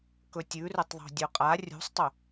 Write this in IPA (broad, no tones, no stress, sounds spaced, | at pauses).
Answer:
k ɵ tʲ ʉ r ɵ tˤ ðˤ o̤ dʲ ɵ qʼ a rʲ ṳ sˤ tˤ ɵ